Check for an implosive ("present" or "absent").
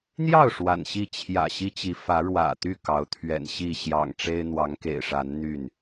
absent